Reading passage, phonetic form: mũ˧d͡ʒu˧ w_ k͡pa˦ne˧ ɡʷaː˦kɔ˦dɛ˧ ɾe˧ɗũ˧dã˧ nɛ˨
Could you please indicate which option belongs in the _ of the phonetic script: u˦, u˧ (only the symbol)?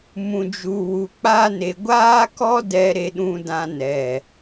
u˧